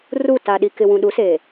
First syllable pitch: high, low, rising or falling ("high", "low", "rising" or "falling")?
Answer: falling